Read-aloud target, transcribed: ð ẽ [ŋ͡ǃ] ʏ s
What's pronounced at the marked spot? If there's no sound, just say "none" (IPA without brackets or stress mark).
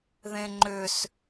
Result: ŋ͡ǃ